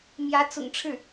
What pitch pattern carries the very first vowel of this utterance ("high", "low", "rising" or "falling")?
rising